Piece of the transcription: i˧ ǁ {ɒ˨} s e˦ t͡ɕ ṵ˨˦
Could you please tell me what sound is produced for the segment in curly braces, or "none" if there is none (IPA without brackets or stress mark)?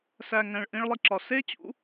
ɒ˨